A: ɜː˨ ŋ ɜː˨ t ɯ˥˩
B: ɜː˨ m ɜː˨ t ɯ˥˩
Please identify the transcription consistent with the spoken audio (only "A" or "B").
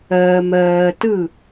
B